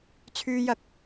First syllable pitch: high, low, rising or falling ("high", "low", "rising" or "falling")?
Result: high